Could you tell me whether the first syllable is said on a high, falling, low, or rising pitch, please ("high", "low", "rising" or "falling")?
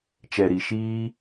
low